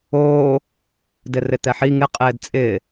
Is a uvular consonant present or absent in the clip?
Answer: present